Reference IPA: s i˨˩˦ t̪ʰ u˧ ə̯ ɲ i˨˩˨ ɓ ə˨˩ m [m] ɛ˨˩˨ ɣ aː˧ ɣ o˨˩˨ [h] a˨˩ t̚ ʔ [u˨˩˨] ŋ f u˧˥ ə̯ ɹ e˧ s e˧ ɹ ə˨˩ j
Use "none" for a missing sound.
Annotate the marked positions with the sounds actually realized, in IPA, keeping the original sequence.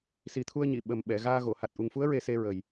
ɓ, h, u˨˩

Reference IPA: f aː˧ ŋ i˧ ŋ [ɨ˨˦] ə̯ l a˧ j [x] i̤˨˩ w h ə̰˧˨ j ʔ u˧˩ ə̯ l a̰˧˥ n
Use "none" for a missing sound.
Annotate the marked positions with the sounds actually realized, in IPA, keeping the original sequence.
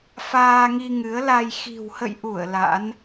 ɨ˨˦, x

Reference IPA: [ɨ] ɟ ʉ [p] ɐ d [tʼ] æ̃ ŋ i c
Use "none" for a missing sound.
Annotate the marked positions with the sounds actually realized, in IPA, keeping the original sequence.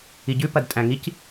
i, p, tʼ

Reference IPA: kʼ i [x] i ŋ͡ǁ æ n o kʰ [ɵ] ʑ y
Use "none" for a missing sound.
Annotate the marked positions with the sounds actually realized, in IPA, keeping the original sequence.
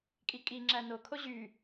kʼ, o

